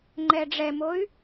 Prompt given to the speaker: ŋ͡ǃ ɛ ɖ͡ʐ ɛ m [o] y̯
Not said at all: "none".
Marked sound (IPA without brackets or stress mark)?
o